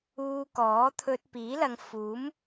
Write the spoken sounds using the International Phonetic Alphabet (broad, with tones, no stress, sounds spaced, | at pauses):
uː˧ k ɔː˨˥ t̪ʰ ɵ˧ t̚ p iː˨˥ l ɐ˨ ŋ f uː˨˥ m